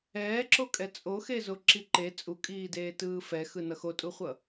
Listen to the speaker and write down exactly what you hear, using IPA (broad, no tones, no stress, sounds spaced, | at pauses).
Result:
ɛː ǁ o kʼ ɛ t͡sʼ o x e z o ǁ i ǃ e t͡sʼ u kʼ iː d eː t ɯː f ɛ x ɯ n ʌ x o tʼ u χʷ ʌ